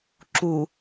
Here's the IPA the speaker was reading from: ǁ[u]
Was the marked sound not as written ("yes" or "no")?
no